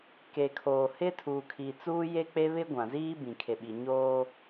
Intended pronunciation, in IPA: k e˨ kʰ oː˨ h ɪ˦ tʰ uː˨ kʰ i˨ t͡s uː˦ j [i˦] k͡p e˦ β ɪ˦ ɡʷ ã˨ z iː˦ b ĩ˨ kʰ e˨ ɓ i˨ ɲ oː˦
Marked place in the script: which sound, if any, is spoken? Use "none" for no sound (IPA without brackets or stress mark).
e˦